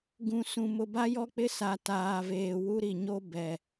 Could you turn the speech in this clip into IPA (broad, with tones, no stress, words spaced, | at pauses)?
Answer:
ɡũ˨sũ˨ mʊ˨ba˦jɔ˦k͡pɪ˦ sa˨ taː˨veː˨ wu˦ɾi˨ɲo˦ bɛ˨